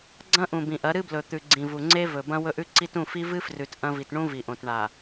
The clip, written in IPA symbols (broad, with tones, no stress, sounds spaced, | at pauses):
ɡ͡ǀ ɐ̃˦ ʔ ũ˨ b ĩ˨ ʔ ɐ˨˦ ɾ ɨ˦ b l ɵ˨ t̪ ʉ˨ ɡ͡ǀ ĩ˨ v u˨ ŋ͡ǀ e˦ v ɵ˨ b ɐ̃˦ w ɵ˦ ʔ ʉ˦ ǀ i˦ t ũ˦˨ f i˦ v ɨ˦ f r ʉ˨ t ʔ ɐ̃˦ v i˨ t ɳ ũ˦ v i˨ ʔ õ˨ t ɳ a˨